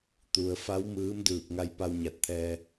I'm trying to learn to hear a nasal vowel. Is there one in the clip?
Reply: no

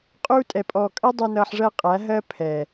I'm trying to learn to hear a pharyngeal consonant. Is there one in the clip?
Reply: yes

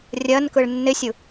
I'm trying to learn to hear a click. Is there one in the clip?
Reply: no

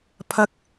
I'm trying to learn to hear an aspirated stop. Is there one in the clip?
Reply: yes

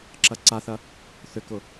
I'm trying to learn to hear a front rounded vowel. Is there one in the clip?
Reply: yes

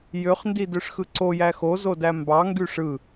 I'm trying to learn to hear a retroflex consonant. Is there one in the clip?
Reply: yes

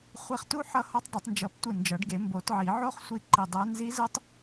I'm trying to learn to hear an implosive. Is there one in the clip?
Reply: no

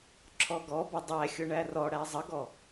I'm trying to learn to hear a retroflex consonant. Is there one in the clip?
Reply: yes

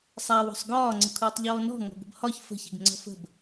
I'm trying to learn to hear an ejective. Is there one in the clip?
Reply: no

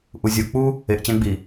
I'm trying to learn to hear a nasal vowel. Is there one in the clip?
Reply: yes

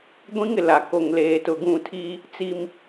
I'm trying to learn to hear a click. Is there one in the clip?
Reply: no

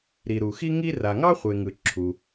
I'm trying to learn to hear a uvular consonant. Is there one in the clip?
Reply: yes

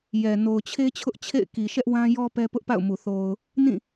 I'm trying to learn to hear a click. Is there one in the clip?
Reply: no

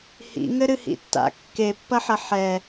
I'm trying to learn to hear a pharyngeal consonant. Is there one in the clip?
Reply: yes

